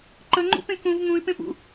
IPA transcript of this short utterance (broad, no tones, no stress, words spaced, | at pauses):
ǃəŋ͡ǃṵpẽ kũv ŋũy̯pẽpṵ